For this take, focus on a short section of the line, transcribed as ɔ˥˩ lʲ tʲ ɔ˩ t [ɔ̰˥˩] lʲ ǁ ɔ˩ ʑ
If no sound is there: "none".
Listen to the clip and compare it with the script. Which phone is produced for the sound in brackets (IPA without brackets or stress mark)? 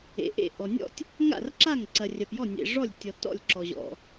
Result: ɔ̰˥˩